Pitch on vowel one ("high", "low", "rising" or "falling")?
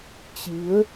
rising